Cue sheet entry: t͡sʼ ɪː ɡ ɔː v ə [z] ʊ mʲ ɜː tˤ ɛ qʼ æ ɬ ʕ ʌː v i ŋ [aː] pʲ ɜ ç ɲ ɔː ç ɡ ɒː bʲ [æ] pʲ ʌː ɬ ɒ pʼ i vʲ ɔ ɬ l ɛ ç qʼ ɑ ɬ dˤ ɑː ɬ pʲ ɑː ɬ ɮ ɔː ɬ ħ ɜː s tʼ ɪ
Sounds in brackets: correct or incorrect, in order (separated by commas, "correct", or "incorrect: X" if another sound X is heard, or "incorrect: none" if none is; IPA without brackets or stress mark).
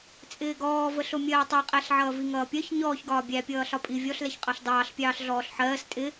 incorrect: ɬ, incorrect: ʌː, correct